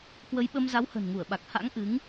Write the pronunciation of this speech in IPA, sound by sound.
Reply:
k w ə˨˦ j ɓ ə˧ m z a˨˦ w h ə̤˨˩ n ŋ u˧˩ ə̯ ɓ a˨˩ k̚ h a̰˧˥ ŋ ʔ ɨ˨˦ ŋ

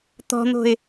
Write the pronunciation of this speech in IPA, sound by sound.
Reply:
t̪ ɔ̤ n̪ o̤ ɪ̯

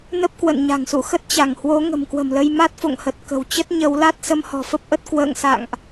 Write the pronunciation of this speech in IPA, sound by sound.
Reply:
n ə˦˥ p̚ k w ə̰˧˨ n ɲ a̤˨˩ ŋ s ṵ˧˨ x ə˦˥ t̚ t͡ɕ a˧˩ ŋ h w o˨˦ ŋ ə̤˨˩ m k w ə̤˨˩ m l ə˧ j m a˦˥ t̚ f o̰˧˨ ŋ h ə˨˩ t̚ k ə̤˨˩ w t͡ɕ ə˦˥ t̚ ɲ ə˨˦ w l a˦˥ t̚ s ə˧ m h ɔ̤˨˩ f ə˦˥ p̚ ʔ ə˦˥ t̚ k w ə̰ː˧˨ ŋ s a̰˧˨ ŋ ʔ

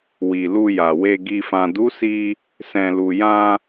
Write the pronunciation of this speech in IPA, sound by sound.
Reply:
w i˨ l u˧ j a˨ w e˨ ɡ i˨ f ã˨ d u˨˦ s i˧ | s ɛ̃˨ l u˨ j ã˧

